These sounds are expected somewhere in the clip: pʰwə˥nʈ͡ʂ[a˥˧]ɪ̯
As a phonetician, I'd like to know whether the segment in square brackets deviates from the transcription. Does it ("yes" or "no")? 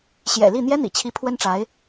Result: yes